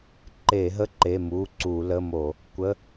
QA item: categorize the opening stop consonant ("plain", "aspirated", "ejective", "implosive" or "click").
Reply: click